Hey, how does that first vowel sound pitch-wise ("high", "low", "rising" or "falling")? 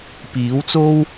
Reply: rising